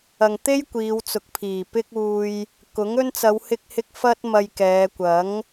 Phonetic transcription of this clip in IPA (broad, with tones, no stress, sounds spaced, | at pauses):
ɐ˨ ŋ t̪ e˥ j kʷ iː˨˧ w t͡s ʊ˨ k̚ pʰ iː˨˩ p ɪ˥ k̚ uː˧ j | k ʊ˨˥ ŋ ɵ˥ n t͡s ɐ˨˧ w h ɪ˧ k̚ h ɪ˧ k̚ f ɐ˥ t̚ m ɐ˧ j k ɛː˨˧ kʷ ɐ˨˥ ŋ